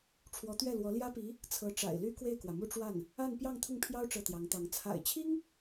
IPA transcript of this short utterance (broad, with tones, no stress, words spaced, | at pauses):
ʈ͡ʂʰwɔ˧˥t̪ɥɛ˥˩lwɔ˧˥ ljä˥pi˧˥ | t͡sʰɤ˧˥ʈ͡ʂa̰˨˩ɪ̯ly˥ kwe˥˩ɪ̯kwä˩mu˥˧ʈ͡ʂwa˥˩n | a˥˧n pjɑ˥˧ŋt̪ʰʊ˥˩ŋpʰjɑ˥ʊ̯ ʈ͡ʂɤ˥˩t̪jɑ˧˥ŋt̪ɑ˧˥ŋ t͡sʰa̰˨˩ɪ̯t͡ɕʰi˥ŋ